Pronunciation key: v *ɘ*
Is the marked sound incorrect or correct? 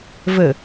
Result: correct